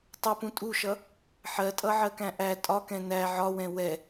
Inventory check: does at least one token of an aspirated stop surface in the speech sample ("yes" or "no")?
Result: no